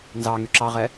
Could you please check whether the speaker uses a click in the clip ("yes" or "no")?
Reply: yes